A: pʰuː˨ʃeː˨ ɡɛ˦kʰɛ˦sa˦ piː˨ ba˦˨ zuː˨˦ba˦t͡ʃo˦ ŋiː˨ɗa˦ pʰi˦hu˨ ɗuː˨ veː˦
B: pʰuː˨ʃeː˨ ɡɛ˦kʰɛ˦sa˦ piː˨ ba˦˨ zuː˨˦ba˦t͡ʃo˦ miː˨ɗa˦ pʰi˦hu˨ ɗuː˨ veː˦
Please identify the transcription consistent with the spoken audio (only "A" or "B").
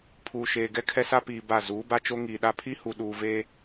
A